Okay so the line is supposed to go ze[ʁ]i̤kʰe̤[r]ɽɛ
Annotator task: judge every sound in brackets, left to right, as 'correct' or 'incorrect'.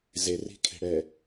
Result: incorrect: r, incorrect: none

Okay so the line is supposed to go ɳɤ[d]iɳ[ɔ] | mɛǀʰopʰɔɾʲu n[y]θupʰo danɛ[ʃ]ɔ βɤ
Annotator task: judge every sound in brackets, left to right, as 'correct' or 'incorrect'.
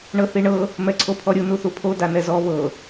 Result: incorrect: θ, incorrect: ɤ, incorrect: u, incorrect: z

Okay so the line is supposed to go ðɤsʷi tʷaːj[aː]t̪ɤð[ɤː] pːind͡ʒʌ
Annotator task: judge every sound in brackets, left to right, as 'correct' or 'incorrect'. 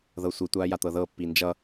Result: incorrect: a, correct

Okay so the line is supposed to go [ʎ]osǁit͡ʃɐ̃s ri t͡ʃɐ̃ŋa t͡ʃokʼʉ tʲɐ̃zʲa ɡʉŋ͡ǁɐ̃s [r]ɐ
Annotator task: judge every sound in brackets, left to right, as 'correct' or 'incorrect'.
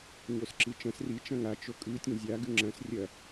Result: incorrect: ɲ, incorrect: rʲ

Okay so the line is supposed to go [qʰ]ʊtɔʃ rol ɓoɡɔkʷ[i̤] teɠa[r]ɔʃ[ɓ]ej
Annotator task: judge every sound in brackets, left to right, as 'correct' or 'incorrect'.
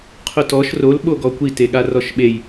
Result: correct, incorrect: i, correct, correct

